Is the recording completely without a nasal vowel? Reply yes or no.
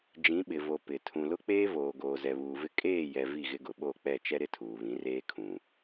no